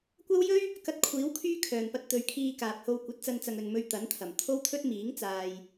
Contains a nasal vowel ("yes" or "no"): no